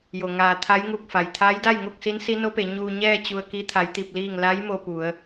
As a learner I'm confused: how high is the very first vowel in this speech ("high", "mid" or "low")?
mid